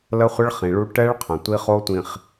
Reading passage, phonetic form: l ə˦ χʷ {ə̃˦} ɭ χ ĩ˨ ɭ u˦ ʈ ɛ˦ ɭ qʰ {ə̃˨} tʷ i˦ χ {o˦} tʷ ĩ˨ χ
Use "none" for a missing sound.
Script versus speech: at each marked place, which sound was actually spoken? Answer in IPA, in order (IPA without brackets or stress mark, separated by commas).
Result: ə˦, ə̃˨, o˦